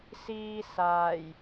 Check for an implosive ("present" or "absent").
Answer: absent